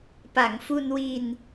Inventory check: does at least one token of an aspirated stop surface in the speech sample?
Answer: no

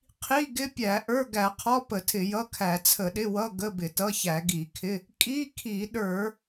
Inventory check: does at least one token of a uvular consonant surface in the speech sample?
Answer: yes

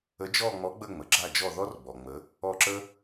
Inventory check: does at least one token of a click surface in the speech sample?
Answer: yes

